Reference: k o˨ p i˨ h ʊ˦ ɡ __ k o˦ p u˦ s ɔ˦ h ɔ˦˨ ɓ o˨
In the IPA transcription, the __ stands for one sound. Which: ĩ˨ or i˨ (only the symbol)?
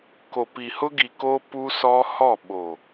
i˨